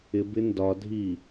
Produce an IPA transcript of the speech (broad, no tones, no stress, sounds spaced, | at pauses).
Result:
ɪ b ɪ n d ɒ dʱ i